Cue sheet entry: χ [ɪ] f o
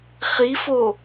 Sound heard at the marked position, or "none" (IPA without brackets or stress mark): i